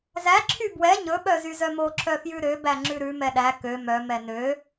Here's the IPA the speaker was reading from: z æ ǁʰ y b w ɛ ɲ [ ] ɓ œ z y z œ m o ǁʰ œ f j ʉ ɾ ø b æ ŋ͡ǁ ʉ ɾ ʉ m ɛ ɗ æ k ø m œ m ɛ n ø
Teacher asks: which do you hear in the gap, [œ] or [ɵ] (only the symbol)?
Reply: ɵ